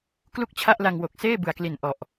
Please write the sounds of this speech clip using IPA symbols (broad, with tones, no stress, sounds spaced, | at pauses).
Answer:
k l u˥˩ k̚ t͡ɕʰ a˥˩ ʔ l a˧ ŋ w o˨˩ k̚ s eː˥˩ b ɯ˨˩ a̯ k l i˨˩ n ʔ ɔ˨˩ ʔ